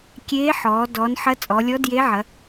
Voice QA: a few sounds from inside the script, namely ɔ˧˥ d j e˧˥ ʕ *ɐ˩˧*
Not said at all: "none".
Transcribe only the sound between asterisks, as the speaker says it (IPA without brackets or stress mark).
ɐ˩˧